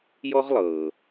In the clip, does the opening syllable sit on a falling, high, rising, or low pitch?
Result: high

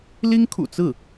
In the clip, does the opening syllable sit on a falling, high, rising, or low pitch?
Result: high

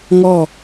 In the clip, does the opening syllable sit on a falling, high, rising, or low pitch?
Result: falling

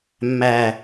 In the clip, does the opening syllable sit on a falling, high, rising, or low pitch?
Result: low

